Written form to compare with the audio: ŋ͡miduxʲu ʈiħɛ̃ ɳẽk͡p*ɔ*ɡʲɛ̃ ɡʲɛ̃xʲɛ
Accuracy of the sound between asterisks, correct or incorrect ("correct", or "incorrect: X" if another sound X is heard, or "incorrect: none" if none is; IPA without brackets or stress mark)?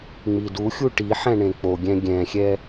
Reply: incorrect: o